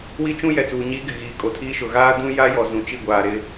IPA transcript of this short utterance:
wi˦t͡ʃũ˦ jɛ˨t͡suː˨ ɲiː˦ɡɪ˨ ɣiː˨kʼo˨tʰiː˦ʃʊ˨ ɣaː˦dũ˦ ja˦jɔ˨ zũ˨t͡ʃi˦˨ɡʷaː˨ ɾɪ˦

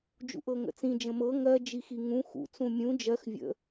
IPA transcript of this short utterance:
d͡ʒṵʔɤŋə̰t͡sĩ d͡ʒə̃mɤ ŋɜ d͡ʒixiŋũ xṵ t͡sũmʲũ d͡ʒɜx vʲə̰

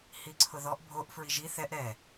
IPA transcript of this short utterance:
hiǀʰʊðɔʔ bʱoʔ fɹiʒi θɛʔ ɾɛ

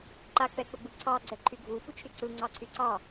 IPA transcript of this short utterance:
ǃa k͡pɛk͡pɘɡ͡bɯǀʰɑ ɡ͡ǀɛǃʰyɡʱu fut͡ʃʰyǀɯ ŋ͡ǀɑǀʰyǀɑ

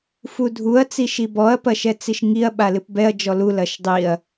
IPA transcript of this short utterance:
fudʱuɐ̯ t͡siʃibɔɐ̯ pɐʃɛt͡siʃŋiɐ̯ ɓalɨpbɛɐ̯ d͡ʒɔlu lɐʃdˤiɐ̯

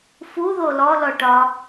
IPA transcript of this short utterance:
fuðo lɔlɔʈɒ

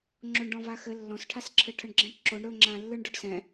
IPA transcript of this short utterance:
ŋ͡ǁoɳɖɔ̃vaxɘ lːɔ̃sʈʰasǁʰɘ ʈʰəɳɡ͡ǁɛ̃ʈǁoɳ ɾɵŋ͡ǁãlːɯɳ ɖʊɖsɛ̃

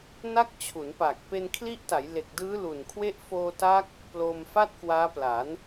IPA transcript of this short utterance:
na˦˥k̚t͡ɕʰu˩˦npaː˨˩k̚ pe˧nkʰli˦˥ʔta˩˦jle˨˩k̚ dɯː˦˥lu˨˩nkʰwe˦˥ʔ foː˧ta˦˥k̚ | ploː˧mfa˥˩t̚kwaː˦˥pla˩˦n

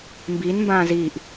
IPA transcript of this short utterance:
mbinmbãː ziːʔ

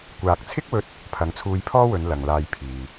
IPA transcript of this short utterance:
kʷaː˨k̚t͡sʰɪ˥k̚wɵ˧t̚ | pʰɐ˨˥ŋt͡sʰuː˧jpʰɔː˥wɵ˨˧n lɐ˨ŋlaː˧j pʰiː˨

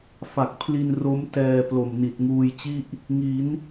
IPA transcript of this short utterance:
fa˨˩k̚pʰli˧n ro˦˥mtɛː˧ plo˨˩mni˨˩t̚ŋuː˧jt͡ɕi˥˩ʔ | ŋi˩˦n

